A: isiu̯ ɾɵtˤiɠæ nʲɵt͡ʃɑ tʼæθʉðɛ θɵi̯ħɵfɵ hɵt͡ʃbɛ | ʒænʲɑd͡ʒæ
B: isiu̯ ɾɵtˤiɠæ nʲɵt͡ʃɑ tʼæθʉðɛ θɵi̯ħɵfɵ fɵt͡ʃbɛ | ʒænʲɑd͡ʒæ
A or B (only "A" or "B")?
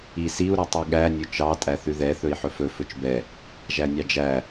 B